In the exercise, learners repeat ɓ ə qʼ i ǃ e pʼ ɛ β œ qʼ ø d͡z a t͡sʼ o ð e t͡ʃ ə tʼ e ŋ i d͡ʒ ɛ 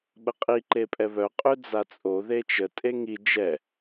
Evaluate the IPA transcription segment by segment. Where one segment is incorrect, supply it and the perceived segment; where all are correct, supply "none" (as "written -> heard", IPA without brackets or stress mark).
none